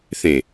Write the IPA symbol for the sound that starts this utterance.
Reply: θ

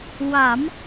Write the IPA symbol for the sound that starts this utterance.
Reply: w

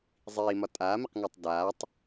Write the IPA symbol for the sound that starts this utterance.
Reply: zˤ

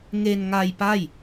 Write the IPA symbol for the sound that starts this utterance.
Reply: ŋ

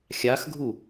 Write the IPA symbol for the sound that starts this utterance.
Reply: xʲ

